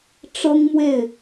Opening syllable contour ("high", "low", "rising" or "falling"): high